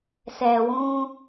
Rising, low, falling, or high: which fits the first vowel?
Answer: low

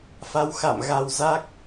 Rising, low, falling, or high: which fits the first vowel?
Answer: rising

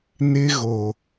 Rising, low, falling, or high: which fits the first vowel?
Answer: high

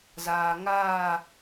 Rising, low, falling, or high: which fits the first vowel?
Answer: low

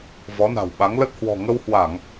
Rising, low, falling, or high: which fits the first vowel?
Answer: rising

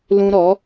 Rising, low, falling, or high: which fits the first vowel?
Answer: high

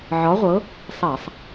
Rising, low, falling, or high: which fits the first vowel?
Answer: rising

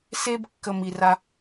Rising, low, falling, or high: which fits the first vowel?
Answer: high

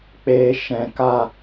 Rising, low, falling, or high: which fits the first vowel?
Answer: low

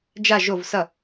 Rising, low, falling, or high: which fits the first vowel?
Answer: falling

